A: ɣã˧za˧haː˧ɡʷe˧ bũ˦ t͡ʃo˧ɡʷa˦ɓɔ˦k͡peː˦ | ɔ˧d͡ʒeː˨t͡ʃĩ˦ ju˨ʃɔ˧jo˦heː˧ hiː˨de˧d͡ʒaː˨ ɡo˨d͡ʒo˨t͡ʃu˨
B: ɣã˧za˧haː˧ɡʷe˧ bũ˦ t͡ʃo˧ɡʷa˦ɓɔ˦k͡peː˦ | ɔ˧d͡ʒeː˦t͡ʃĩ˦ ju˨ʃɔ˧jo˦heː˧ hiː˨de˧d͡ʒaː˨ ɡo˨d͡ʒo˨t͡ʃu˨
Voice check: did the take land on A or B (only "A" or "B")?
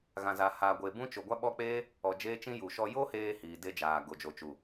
B